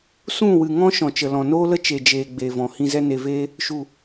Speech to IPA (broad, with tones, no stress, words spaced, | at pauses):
sũ˦˨wɨ˨ŋɔ̃˦ ʃɔ̃˨t͡ʃə˨lɔ̃˨ noː˦lə˦ t͡ʃe˨d͡ʒeː˨ ɡ͡beː˨vɔ̃˨ hĩ˧zɛ˦ne˧veː˦ | ʃu˨